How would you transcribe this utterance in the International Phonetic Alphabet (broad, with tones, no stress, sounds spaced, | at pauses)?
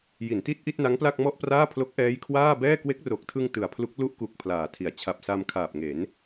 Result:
j i˩˦ n t i˥˩ t̚ ʔ i˥˩ t̚ n a˦˥ ŋ p l a˥˩ k̚ m ɔ˥˩ ʔ p r aː˥˩ pʰ l o˦˥ k̚ ʔ ɛː˦˥ j kʰ w aː˥˩ b ɛː˥˩ k w e˦˥ k̚ r o˨˩ k̚ tʰ ɯ˧ ŋ t ɯ˨˩ a̯ pʰ l u˦˥ k̚ l u˥˩ ʔ k u˨˩ k̚ pʰ l aː˨˩ tʰ i˩˦ a̯ t͡ɕʰ a˨˩ p̚ s a˧ m kʰ aː˨˩ p̚ ŋ e˩˦ n